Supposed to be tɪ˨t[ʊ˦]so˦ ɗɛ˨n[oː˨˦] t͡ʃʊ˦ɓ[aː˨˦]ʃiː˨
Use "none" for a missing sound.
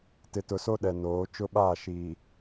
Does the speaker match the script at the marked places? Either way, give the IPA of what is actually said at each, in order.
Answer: ʊ˨, oː˨˦, aː˦˨

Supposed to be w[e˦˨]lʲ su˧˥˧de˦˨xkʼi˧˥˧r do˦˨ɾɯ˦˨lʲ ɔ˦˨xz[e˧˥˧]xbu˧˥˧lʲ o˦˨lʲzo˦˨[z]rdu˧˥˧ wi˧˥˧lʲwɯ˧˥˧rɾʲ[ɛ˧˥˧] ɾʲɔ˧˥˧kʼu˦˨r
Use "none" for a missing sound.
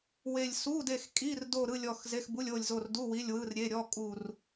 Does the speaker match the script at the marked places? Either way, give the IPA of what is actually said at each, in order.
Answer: e˦˨, e˧˥˧, none, e˧˥˧

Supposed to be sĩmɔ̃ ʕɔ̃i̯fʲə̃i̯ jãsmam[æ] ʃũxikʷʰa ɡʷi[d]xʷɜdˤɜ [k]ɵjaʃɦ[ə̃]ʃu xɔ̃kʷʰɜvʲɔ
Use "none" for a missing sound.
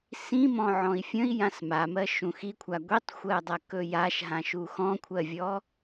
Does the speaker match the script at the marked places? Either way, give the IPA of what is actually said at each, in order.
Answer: ɜ, tˤ, k, ã

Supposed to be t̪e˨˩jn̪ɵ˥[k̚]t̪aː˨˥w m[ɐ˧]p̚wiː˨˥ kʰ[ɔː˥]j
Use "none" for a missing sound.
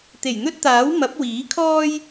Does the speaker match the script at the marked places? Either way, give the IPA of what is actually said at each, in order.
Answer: t̚, ɐ˨˥, ɔː˥

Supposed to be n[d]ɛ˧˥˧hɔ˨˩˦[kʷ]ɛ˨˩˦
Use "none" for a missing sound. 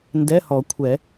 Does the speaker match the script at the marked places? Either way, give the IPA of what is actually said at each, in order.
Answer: d, kʷʰ

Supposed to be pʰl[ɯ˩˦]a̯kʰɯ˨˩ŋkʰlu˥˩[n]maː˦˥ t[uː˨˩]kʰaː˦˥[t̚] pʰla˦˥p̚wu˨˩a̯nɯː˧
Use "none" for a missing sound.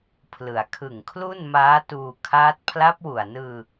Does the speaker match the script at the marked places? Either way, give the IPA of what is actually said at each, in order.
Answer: ɯ˩˦, n, uː˧, t̚

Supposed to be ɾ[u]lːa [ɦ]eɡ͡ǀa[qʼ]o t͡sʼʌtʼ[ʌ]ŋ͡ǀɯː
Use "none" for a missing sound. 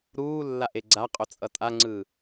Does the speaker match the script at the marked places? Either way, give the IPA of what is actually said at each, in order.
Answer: uː, ʔ, qʼ, a

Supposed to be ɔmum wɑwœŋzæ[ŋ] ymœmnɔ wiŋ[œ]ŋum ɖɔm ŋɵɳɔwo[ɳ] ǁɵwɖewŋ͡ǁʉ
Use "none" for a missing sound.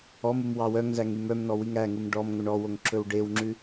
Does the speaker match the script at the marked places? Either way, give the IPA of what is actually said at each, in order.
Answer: ŋ, æ, ŋ

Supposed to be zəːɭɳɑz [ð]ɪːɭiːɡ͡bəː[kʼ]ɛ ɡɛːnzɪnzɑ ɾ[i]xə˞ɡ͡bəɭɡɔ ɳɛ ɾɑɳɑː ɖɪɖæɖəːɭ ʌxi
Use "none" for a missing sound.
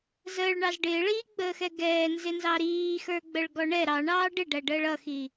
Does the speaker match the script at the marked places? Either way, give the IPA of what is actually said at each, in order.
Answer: ɖ, x, iː

